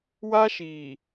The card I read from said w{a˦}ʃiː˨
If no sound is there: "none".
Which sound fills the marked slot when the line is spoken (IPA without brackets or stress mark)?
a˦